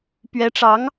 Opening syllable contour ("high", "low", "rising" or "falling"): rising